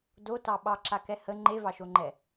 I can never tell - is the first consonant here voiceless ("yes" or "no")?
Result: no